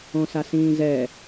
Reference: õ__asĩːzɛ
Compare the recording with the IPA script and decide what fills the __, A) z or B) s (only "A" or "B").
B